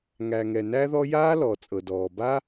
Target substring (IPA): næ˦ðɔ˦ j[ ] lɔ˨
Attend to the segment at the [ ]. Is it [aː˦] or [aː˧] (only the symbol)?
aː˦